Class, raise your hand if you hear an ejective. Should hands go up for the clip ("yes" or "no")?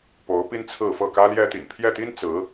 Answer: no